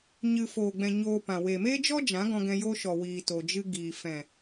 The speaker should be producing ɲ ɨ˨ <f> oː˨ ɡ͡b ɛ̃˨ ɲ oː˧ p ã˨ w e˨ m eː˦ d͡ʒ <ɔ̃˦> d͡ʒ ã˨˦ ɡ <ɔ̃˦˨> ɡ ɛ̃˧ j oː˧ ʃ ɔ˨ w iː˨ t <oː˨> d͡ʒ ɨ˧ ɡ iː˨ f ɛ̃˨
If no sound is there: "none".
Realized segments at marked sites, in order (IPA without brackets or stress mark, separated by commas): f, ɔ˦, ɔ̃˧, o˨